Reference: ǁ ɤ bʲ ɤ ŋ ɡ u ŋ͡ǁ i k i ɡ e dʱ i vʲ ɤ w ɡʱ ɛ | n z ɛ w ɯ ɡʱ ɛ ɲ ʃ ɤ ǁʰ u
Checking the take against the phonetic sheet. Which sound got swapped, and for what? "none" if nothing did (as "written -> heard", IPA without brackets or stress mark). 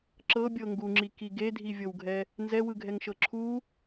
ɲ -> ŋ